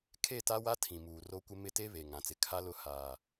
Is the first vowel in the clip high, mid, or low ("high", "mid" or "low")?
mid